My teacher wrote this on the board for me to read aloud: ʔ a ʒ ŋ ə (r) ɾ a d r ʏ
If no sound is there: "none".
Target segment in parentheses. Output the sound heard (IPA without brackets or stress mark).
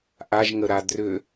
none